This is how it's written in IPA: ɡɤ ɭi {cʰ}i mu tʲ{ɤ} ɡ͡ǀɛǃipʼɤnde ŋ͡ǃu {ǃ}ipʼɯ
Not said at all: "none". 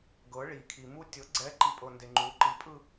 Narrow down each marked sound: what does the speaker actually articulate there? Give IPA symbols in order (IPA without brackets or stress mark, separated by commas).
kʰ, ɤ, ǃ